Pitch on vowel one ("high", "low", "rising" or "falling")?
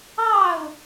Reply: falling